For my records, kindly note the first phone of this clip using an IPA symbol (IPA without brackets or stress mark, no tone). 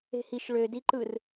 e̤